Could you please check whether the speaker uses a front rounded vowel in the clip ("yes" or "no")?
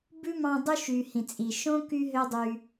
yes